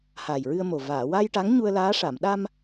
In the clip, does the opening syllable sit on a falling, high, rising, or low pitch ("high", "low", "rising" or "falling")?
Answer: low